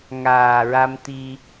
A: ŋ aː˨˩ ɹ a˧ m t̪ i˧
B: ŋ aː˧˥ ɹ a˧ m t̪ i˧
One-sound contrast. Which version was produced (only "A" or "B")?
A